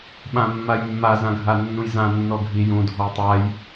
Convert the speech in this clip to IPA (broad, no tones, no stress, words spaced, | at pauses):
ɓãmːajmːa zãɡʱanːũjzã nːɔɡʱi jũ dʱɔjtˤaj